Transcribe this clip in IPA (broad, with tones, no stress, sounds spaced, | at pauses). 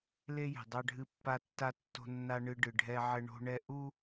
l e˦ j ɛ̤˨ dˤ a˦ ɖʱ ɨ˦ pː a˦ tː a˦ tː o̤˦ nː a˦ ɳ ɨ˦ ɖ ɨ˨ ɖʱ ɛ˦ ʕ ɘ˦ ɳ o̤˦ ɳ ɛ˦ ʔ u˦